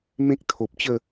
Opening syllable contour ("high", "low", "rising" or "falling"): high